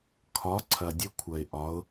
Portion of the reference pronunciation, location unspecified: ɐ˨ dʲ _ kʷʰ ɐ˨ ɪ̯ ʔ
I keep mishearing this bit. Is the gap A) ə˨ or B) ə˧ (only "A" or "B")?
B